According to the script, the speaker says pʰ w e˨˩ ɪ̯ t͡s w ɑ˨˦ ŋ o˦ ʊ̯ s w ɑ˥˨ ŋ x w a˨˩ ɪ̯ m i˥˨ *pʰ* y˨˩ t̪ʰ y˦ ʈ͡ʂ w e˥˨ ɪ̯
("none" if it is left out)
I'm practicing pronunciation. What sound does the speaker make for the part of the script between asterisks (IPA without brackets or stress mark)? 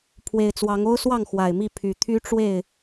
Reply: pʰ